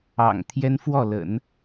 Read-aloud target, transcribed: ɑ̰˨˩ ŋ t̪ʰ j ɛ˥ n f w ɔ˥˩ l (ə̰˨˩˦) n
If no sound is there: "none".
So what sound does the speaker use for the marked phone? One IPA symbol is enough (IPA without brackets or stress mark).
ə̰˨˩˦